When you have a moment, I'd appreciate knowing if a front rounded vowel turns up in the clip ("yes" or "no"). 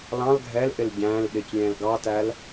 no